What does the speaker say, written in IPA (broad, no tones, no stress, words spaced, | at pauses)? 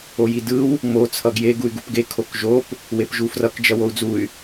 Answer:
ojidɯw | mo t͡sʰʌɡje ɡuy̯ɡupɡe kʰokʒop | wepʒufrʌk d͡ʒʌwou̯d͡zuy̯